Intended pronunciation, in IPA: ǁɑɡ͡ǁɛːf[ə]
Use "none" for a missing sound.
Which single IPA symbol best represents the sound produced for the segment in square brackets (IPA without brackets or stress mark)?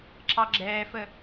ə